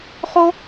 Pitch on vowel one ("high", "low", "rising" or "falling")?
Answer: high